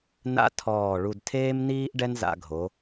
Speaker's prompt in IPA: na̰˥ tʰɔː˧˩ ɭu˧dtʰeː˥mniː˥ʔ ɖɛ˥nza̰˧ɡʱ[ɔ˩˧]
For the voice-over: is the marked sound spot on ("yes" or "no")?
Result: no